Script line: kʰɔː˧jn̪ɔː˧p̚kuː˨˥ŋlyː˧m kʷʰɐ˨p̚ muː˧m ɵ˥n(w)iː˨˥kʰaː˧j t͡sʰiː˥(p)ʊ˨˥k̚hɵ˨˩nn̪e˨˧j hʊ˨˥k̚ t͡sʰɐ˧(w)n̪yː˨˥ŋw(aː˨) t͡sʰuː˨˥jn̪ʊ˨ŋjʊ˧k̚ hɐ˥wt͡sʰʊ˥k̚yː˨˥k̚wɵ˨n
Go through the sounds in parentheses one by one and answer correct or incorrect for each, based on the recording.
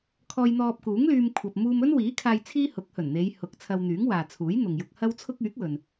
correct, incorrect, correct, correct

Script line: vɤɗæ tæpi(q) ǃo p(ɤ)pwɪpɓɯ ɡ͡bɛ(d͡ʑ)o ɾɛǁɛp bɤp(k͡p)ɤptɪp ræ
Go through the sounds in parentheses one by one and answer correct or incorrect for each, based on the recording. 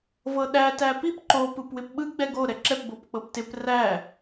incorrect, incorrect, incorrect, correct

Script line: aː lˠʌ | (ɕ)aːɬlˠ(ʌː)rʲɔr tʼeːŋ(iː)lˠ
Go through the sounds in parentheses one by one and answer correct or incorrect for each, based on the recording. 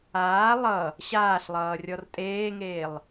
correct, correct, incorrect

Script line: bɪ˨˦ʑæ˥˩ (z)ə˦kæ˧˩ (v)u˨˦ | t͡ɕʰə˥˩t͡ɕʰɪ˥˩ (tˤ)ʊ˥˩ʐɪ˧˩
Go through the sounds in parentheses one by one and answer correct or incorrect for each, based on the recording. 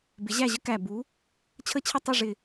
incorrect, incorrect, correct

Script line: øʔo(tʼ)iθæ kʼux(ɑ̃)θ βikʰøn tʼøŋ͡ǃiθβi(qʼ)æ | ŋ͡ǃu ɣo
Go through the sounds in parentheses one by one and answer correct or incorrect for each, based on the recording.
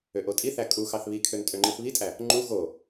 correct, incorrect, incorrect

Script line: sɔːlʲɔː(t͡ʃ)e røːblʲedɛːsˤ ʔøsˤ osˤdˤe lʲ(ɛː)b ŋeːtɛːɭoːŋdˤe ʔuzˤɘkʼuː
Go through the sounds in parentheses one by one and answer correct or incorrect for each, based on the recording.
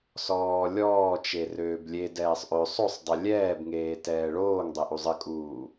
correct, correct

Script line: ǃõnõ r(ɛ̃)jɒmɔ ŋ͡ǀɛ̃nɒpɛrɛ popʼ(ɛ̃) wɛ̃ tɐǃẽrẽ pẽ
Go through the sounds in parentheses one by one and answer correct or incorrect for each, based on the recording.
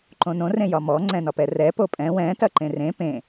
incorrect, correct

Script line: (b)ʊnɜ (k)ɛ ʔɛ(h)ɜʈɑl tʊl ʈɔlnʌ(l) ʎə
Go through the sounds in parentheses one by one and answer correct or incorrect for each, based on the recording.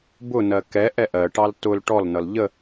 correct, correct, incorrect, correct

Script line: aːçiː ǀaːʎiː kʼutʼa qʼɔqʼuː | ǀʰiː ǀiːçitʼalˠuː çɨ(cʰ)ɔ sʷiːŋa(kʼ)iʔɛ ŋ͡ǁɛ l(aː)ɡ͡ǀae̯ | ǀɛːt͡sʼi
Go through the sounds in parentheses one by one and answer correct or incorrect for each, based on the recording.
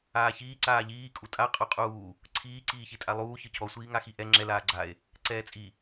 correct, incorrect, correct

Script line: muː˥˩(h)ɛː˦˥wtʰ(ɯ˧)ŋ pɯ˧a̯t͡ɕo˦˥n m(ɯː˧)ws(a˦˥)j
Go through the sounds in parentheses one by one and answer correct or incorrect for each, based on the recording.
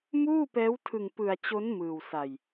incorrect, correct, correct, incorrect

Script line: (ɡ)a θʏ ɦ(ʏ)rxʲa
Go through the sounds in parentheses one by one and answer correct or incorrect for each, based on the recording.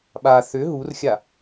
incorrect, incorrect

